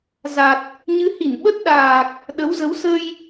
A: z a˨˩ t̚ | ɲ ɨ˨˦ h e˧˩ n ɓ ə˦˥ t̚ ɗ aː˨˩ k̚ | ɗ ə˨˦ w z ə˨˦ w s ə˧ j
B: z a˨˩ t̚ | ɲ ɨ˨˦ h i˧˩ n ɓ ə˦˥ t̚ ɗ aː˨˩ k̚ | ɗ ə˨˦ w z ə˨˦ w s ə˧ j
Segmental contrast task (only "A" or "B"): B